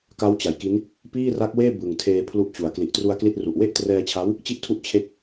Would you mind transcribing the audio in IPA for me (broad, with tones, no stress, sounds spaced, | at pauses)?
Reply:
k a˦˥ w t͡ɕ a˩˦ j k i˦˥ n | p iː˥˩ r a˦˥ k̚ w eː˥˩ b ɯ˨˩ ŋ tʰ eː˧ pʰ l u˦˥ ʔ t͡ɕ u˨˩ a̯ k l i˨˩ ʔ t r u˧ a̯ k l i˥˩ t̚ r u˨˩ ʔ w e˥˩ ʔ t r ɛː˧ t͡ɕʰ a˦˥ w | t͡ɕ i˥˩ ʔ tʰ u˥˩ ʔ t͡ɕʰ e˥˩ k̚